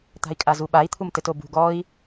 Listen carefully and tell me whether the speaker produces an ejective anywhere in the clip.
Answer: yes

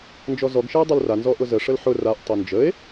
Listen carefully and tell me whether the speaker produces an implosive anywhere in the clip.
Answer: no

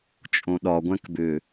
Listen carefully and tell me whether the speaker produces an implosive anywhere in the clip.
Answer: yes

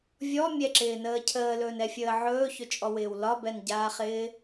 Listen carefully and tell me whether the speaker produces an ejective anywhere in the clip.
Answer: yes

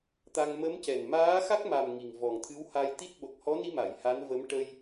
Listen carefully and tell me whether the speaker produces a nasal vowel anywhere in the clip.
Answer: no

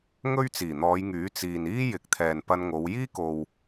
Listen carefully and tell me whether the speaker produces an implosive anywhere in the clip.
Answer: no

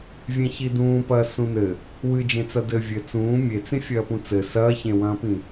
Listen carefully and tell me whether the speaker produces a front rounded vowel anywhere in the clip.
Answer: no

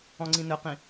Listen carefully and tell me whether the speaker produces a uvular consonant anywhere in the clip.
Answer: yes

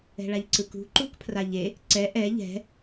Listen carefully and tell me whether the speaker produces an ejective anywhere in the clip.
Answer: no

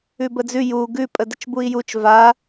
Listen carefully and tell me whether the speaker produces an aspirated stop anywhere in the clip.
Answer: no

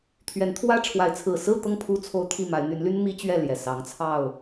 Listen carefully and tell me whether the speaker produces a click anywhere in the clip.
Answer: no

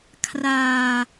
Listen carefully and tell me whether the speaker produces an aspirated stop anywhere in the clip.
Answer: yes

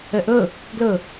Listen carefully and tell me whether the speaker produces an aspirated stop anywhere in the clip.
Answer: no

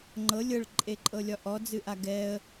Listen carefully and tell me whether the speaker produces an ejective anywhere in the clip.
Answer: yes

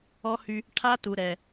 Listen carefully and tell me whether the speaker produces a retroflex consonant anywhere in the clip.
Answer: yes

